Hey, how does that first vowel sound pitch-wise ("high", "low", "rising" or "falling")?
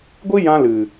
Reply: high